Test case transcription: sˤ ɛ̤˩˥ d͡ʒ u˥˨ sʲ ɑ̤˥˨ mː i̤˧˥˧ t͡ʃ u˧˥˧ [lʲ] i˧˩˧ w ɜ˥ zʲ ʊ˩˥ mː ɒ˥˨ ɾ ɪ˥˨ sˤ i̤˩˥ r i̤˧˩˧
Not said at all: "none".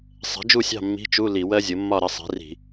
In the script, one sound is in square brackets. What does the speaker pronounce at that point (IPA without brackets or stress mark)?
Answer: l